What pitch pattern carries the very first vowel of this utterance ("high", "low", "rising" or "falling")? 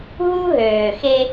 high